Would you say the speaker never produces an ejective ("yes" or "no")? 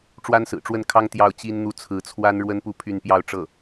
yes